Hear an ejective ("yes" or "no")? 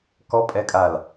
yes